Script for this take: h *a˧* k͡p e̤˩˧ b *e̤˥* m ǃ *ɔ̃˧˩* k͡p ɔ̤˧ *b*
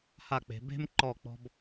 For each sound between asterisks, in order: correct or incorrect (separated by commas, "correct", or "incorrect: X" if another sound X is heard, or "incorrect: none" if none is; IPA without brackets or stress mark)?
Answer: incorrect: a˧˩, correct, incorrect: ɔ˧˩, correct